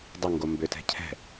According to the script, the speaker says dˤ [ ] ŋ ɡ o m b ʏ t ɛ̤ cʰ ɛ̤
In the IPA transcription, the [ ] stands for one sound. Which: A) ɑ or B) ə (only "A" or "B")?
B